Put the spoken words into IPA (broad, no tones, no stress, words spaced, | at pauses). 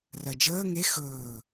rɜd͡ʒəː ŋe xɵː